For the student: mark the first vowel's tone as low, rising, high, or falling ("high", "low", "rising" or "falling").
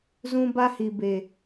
high